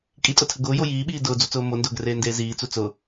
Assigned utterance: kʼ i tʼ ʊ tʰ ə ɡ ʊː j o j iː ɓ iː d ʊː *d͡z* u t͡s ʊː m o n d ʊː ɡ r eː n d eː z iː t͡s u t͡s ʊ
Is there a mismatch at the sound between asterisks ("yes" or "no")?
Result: no